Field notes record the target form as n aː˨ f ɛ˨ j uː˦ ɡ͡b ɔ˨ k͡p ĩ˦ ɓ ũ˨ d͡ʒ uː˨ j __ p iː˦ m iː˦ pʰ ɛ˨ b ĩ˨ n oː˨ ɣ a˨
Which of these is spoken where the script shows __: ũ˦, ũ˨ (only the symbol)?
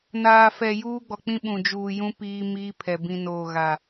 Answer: ũ˦